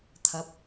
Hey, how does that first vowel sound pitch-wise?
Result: rising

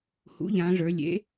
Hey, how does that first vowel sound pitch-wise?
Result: rising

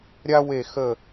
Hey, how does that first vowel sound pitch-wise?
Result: high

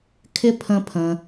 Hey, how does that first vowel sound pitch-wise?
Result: high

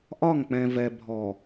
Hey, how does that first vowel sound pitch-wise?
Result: falling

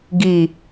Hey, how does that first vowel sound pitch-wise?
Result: low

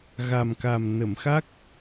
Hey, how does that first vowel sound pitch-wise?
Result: low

